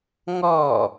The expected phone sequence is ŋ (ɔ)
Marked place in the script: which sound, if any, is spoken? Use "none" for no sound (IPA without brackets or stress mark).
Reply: ɔ